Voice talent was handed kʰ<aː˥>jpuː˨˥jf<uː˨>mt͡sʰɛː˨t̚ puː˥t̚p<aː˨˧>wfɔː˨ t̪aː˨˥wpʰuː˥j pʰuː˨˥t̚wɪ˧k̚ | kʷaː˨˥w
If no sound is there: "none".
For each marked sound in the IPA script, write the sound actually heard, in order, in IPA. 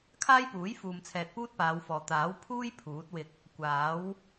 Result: aː˥, uː˨, aː˨˧

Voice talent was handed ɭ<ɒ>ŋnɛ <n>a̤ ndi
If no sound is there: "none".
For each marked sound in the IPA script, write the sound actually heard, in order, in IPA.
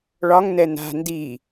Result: ɒ, n

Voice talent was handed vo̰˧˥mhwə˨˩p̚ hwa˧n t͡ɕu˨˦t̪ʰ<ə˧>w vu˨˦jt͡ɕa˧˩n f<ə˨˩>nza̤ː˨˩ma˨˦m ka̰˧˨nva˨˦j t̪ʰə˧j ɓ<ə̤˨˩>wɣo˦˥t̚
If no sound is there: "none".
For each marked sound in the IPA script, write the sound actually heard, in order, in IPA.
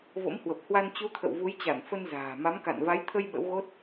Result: ə̰˧˨, ə˧, ə̰˧˥

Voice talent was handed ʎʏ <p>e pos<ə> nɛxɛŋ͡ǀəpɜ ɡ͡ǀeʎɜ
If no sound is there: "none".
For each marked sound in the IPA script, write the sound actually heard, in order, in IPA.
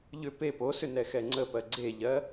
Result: p, ʏ

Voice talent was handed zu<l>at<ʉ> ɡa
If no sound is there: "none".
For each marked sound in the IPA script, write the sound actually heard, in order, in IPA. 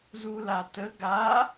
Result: l, ə

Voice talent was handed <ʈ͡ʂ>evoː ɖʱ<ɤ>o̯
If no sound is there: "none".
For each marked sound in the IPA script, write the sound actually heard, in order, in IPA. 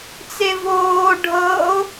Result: t͡s, ɤ

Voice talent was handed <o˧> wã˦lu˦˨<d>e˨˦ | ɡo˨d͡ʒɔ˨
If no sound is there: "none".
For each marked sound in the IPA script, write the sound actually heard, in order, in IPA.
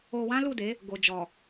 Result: o˧, d

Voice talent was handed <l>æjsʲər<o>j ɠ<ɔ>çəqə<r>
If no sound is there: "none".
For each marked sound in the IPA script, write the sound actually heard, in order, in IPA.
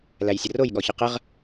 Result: l, o, ɔ, ʁ

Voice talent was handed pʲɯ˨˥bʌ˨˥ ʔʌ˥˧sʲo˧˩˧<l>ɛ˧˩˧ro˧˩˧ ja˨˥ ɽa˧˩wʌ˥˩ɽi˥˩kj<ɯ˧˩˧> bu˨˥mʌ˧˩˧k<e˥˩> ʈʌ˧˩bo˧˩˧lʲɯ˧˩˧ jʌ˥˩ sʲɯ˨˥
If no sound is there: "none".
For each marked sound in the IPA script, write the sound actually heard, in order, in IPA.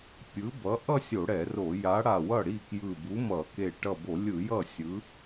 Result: ɽ, ɯ˧˩, e˧˩

